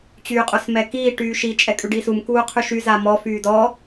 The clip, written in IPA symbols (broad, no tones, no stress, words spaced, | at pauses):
t͡ɕyːqʼosmɛkiː ʈyːʃi t͡ʃʼɛkʼʉɖisum kuːqʰʉʃy zamɔ fyːdɔ